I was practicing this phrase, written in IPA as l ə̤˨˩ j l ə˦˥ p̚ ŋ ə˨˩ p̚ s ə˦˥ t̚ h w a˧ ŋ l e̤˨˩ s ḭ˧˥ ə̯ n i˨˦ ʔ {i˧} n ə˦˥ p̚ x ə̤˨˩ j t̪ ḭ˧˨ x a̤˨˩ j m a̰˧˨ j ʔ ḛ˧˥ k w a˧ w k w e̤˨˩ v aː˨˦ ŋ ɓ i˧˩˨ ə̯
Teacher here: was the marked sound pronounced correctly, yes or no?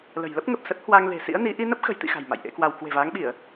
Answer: yes